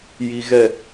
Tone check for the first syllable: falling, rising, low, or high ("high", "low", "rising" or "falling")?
low